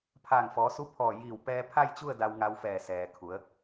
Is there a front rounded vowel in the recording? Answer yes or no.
no